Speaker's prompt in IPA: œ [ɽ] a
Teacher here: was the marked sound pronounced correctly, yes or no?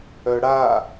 yes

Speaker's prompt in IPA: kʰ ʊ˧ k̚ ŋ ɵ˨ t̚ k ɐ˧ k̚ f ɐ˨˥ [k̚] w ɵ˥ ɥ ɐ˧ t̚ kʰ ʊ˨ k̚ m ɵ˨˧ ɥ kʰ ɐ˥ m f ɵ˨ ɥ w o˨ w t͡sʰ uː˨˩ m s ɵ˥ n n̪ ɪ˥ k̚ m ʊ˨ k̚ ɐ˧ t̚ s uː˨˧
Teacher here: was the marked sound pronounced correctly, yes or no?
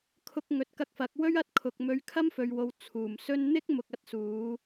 yes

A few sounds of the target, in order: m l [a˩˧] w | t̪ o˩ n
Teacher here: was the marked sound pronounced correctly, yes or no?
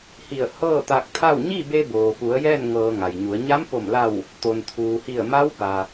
no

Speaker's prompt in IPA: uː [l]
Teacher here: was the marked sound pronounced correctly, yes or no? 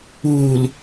yes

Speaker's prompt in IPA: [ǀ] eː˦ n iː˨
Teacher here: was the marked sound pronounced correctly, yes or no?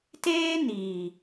no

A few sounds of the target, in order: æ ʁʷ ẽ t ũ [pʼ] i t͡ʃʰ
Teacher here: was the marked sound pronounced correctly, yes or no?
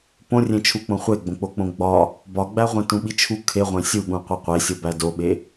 no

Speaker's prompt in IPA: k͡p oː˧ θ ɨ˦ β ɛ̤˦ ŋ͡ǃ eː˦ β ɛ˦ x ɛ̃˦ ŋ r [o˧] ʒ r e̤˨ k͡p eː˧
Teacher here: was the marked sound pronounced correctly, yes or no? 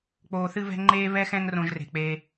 no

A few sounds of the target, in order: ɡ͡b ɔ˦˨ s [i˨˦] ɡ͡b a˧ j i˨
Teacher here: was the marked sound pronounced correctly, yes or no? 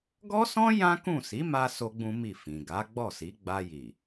yes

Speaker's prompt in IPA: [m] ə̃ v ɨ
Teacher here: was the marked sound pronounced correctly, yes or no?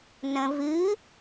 no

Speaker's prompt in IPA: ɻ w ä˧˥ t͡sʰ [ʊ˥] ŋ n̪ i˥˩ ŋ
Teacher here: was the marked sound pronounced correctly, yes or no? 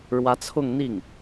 no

